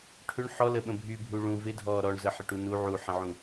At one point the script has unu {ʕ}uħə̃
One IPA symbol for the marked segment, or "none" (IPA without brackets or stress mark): ʕ